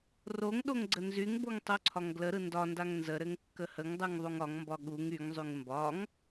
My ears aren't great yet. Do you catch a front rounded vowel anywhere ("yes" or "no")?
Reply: yes